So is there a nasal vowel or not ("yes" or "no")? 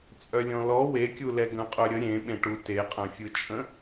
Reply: yes